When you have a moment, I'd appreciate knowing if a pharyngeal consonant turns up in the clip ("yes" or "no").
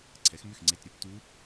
no